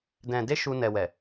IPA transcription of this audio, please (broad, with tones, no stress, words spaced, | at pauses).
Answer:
dɛ̃˨de˧ ʃu˧ nɛ˨wɛ˨